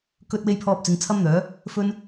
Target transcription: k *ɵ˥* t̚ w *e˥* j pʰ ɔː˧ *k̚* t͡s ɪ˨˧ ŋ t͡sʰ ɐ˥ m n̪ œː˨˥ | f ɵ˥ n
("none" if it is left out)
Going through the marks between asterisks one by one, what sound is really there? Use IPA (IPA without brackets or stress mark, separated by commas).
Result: ɵ˥, e˥, p̚